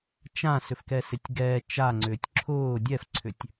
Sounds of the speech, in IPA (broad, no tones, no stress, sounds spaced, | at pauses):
t͡ʃ ã s ʏ f k ɛ s ɪ tʲ ɡ ɛ t͡ʃ a ŋ͡ǀ ʏː tʲ ǁʰ ʊː dʲ ɛ f ǀʰ ʏ tʲ